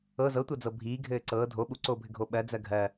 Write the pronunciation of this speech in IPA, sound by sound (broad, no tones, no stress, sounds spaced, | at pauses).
ɤ z ɤ tʷ ɤ d͡z ɤ bʱ iː ɡʱ ɘː ǀ ɤː dʱ o ɓ u ǀ oː bʱ ɘ ɡʱ o ɓ ɜ d͡z ɜ ɡʱ ɜ